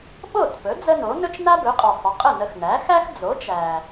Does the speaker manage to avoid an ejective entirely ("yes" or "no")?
no